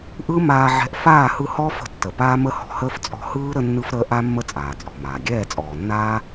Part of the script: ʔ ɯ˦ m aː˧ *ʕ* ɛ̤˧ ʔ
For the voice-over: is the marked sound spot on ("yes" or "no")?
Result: yes